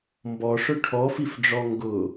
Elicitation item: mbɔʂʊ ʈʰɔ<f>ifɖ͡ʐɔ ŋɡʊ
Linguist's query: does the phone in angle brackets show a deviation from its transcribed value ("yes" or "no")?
no